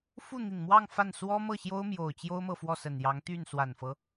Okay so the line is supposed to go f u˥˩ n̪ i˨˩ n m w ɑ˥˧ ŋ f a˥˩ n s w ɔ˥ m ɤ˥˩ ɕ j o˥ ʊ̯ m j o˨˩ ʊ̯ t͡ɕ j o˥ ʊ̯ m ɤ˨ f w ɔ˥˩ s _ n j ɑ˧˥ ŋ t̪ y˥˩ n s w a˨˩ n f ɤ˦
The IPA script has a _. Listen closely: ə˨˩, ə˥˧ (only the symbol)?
ə˨˩